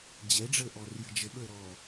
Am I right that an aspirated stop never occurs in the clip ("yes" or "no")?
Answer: yes